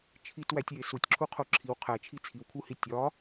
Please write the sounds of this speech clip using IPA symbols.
t͡ʃʰ i t w æ tʲ j e s u tʲ ǁʰ u qʰ o ǁʰ i w qʰ æ t͡ʃʰ i t͡sʰ i w kʰ u h i tʲ ɒ

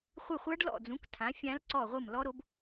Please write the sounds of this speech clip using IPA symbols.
χʷ ɨ˦˨ χʷ a˦˥ ɖ l ɔ̰˦˨ d͡z ũ˨˥ k tʰ ã˨˥ fʲ ã˦˥ l ǀ ɔ˦˨ ʁʷ ɨ˦˨ m l ɔ˦˥ ɾ o˦˥ b

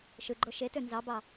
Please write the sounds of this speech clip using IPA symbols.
ʃ ɯ ɡ͡ǃ o ʃ e t ø n z ɑ b ɑ

